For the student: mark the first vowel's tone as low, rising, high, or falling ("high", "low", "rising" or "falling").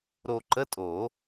low